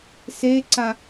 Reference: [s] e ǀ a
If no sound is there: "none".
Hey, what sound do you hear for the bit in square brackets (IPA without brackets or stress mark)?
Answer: s